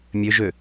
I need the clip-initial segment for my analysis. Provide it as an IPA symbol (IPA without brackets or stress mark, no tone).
mʲ